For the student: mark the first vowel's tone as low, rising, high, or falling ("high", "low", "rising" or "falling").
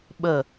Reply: falling